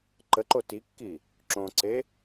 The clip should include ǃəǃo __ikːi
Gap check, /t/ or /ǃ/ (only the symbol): t